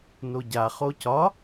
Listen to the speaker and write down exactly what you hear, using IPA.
n o ɟ a χ o c ɒ

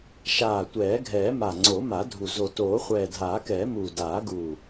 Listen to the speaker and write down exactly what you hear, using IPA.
ʃ aː˨˩ tʷ ɛː˨˩˦ ɡʱ ɛː˨˩˦ m a˨˩ ŋ͡ǀ o˨˩˦ m a˨˩˦ dʱ u˨˩ z o˨˩ t oː˨˩˦ χʷ ɛː˨˩ dʱ aː˨˩˦ k ɛː˨˩˦ m uː˨˩ d aː˨˩˦ ɡ uː˨˩

